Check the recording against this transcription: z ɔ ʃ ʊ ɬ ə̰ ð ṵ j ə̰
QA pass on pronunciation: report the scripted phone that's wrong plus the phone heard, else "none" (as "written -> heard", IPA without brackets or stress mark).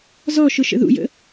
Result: ɬ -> ʃ